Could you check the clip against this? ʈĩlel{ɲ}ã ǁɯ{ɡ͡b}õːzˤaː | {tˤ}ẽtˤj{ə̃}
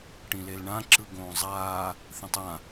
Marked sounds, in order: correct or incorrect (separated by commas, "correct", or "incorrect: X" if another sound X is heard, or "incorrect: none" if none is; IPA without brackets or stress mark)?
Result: incorrect: ɳ, incorrect: ɡ, incorrect: θ, incorrect: ã